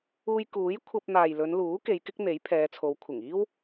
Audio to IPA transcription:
uː˧ j k uː˨˥ j kʷʰ ɐ˧ p̚ n̪ aː˨ j l ɵ˨˧ n l uː˨˥ k e˨˧ j k ɪ˥ k̚ n̪ e˨˥ j pʰ ɛː˨˧ t͡sʰ o˨˧ w kʷʰ ɪ˨˩ ŋ iː˥ w

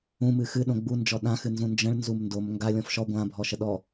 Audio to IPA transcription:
ũ m ɨː x ɨ ɗ õ ɡ͡b u n d͡ʒ ɔ ɗ ã x ɨ n z ũ n d͡ʒ ə̃ ɭ n z u m n d o m ŋ ɡ a lʲ ɔ̃ f ʃ ɔ ɡʷ ã bʱ ɔ ʃ ə ɗ ɔ

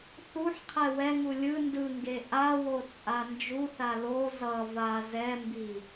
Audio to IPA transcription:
θ u ħ qʰ ɛ w ɛ ŋ u lʲ ɯ n d ɯ ŋ ɡ e ʔ a w o t͡sʼ a n d͡ʒ u θ a l o z ʌ v a z ɛ m b i

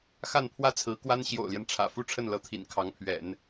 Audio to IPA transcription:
x a˥˧ n pʰ w ä˥˩ t͡sʰ ɹ̩˧˥ k w a˥ n ɕ j o̰˨˩ ʊ̯ l j ɛ˦ n ʈ͡ʂʰ ä̰˨˩ f u˥˧ ʈ͡ʂʰ ə˥˩ n l ɤ˧˥ t̪ʰ ḭ˨˩ n kʰ ɑ˧˥ ŋ pʰ ɥ ɛ̰˨˩˦ n

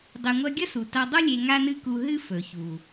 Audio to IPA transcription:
dˤ i˧ ŋʷ ɐ˥ ɡʲ ɐ˥ s u˩ t a˧ dˤ o˥ lʲ e˧ ŋ a˥ n ɨ˥ k u˧ ɦ ɨ˥ f ɵ˩ ç u˩

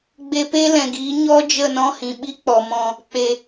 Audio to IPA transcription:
ɡ͡b e˧ p e˦ l ɛ̃˨ ɡ iː˨˦ ɲ ɔ˦ d͡ʒ ə˦˨ n ɔ̃˦ h ĩ˨ ɓ i˦ k͡p ɔ˨ m ɔ̃˧ | k͡p e˨

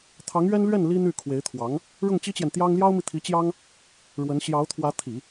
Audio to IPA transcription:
t̪ʰ ɑ˧˥ ŋ ɥ ɛ˥ n l ɥ ɛ˥˩ n l i˥ n̪ y˥˩ kʰ w e˧˥ ɪ̯ t̪ʰ w ɑ˧˥ ŋ | ɻ ʊ˥˩ ŋ t͡ɕ i˥ t͡ɕ j ɛ˨ n t̪ j ɑ˥ ŋ l j ɑ˥ ʊ̯ m i˨ t̪ʰ i˧˥ t͡ɕ j ɑ˥ ŋ | ɻ w ə˧˥ n ɕ j ɑ˧˥ ʊ̯ t̪ʰ w ä˧˥ t̪ʰ i˨˩˦

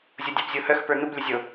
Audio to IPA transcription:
zʲ o dʲ ɑ p zʲ o h œ x p ə˞ n̪ u b lʲ ə zʲ o

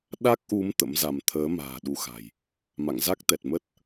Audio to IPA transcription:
ɗ a˦˥ k̚ ʔ u˨˦ m t̪ ə̰˧˥ m z a˧ m t̪ʰ əː˨˦ m a̤ː˨˩ ɗ u˨˦ x a̤˨˩ j | m a̰˧˨ ŋ z a˦˥ k̚ t̪ ɛ˨˩ t̚ m ə˦˥ t̚

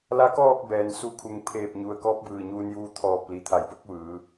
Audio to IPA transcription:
l a˧ k ɔː˥˨ k̚ b ɛː˩ n s u˧ kʰ u˩˧ ŋ pʰ eː˧˩ p̚ ɲ u˩ ə̯ k ɔː˧˥ p̚ b ɯː˧˩ ɲ uː˧ n j uː˧ t̪ʰ ɔː˧˩ p̚ l i˩ t̪ʰ a˩˧ j b o˧˥ k̚ ʋ ɯː˩˧

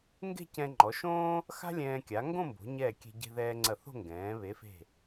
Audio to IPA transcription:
ŋ ɡ e̤˥˧ c ɛ̃˧ ŋ͡ǃ ɔ˩˧ ʃ õː˥ | x a̤˥ lʲ ɛ̃ː˧ kʲ a˩˧ ŋ ɡ õ˥˧ m b o̤˩˧ ɲ ɛː˧˩ kʲ e̤˧ ɟ e̤˧ ð ɛː˧ ŋ͡ǀ ɐ˧˩ θ o̤˥˧ ŋ ɡ ɛ̃ː˩˧ β e˩˧ f e̤˧˩

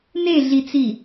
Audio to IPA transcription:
n e ɮ i t͡s i

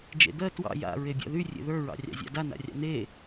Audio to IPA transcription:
d͡ʒ ḛ d̪ ɜ t w ɑ̰ j a̰ ɹ e bʲ a̰ ð y rʲ ḛ ð ə˞ ɹ ɑ̰ rʲ ɑ̰ zʲ ɑ̰ d a n a̰ rʲ ɑ̰ n̪ e

